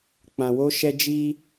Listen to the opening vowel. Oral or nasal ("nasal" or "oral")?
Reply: nasal